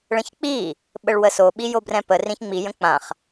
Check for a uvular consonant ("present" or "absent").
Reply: present